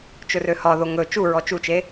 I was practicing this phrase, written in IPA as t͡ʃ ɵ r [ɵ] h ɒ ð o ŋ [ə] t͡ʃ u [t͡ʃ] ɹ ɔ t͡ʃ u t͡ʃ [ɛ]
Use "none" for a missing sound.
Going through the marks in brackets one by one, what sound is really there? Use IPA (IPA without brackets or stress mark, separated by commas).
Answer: ø, ɵ, none, e